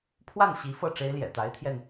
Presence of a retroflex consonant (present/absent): present